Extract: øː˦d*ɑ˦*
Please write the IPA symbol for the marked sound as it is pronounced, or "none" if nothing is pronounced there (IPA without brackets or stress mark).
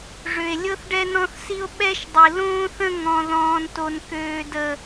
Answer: ə˦